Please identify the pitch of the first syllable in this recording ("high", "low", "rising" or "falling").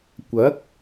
rising